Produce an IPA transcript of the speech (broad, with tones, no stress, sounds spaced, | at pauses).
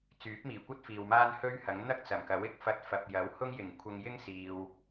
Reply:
t͡s yː˨˥ p̚ m iː˨˩ kʷ ɐ˥ t̚ f iː˨ w m aː˥ n h ɵ˥ ɥ h ɐ˨˥ ŋ n̪ ɐ˥ k̚ t͡s ɐ˨˩ m k ɐ˨˥ w ɪ˥ k̚ f ɐ˧ t̚ f ɐ˨ p̚ j ɐ˨˥ w h ʊ˥ ŋ j ɪ˨˩ ŋ kʷʰ ɐ˧ ŋ j ɪ˥ ŋ s iː˨ w